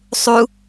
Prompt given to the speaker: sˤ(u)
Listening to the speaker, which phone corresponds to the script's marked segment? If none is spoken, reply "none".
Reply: u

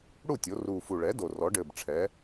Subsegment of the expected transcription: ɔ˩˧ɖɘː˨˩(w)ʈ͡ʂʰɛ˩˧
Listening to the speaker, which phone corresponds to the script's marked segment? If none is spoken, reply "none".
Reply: b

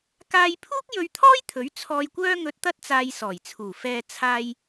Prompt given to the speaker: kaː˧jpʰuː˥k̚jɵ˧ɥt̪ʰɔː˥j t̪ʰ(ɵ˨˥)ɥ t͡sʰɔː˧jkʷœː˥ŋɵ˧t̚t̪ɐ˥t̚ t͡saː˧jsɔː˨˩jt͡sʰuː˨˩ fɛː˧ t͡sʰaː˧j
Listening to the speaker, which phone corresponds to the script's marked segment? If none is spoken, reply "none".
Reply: ɵ˨˥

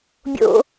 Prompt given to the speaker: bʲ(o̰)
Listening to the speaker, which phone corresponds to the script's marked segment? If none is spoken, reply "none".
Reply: o̰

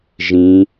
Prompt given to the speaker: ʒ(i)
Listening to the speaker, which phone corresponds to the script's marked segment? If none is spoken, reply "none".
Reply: ĩ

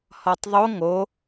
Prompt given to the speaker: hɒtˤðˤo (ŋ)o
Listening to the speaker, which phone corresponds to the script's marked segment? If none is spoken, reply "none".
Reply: ŋ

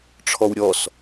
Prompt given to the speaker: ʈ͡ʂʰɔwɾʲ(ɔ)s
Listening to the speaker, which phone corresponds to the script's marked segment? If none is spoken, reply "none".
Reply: ɔ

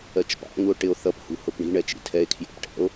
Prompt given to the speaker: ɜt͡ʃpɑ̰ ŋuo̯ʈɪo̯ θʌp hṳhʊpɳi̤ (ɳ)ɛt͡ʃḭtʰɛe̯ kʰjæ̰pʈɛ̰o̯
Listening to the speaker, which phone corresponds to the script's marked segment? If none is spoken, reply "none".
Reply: ɳ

